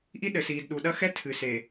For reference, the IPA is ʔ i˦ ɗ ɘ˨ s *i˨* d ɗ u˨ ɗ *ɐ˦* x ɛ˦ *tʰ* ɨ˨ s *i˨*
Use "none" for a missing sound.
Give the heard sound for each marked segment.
iː˨, ɐ˦, tʰ, e˨

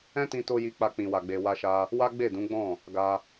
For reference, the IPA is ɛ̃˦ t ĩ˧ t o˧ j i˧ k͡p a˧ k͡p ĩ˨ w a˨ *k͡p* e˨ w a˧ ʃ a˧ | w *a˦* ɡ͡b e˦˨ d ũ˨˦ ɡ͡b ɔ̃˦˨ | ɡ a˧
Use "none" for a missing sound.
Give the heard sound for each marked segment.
ɡ͡b, a˦

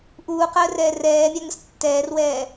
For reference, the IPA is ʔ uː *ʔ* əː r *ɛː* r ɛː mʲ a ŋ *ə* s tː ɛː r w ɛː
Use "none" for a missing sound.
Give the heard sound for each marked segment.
q, ɛː, ə

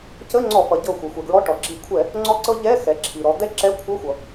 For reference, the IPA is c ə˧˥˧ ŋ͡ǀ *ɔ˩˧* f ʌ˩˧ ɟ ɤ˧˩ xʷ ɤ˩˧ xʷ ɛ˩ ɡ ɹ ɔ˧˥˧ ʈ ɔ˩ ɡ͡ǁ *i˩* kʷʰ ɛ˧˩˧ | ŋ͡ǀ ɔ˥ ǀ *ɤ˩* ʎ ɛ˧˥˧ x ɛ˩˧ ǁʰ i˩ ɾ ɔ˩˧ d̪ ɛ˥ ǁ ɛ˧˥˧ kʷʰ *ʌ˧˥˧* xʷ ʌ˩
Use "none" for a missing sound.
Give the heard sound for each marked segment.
ɔ˧˩˧, i˧˩˧, ɤ˥, ʌ˧˥˧

